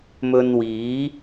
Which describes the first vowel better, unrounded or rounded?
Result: rounded